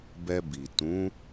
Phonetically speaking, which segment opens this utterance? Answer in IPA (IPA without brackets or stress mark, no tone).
b